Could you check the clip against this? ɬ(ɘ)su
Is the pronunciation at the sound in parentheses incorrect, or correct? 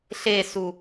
incorrect